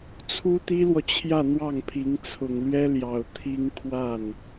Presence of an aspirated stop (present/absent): present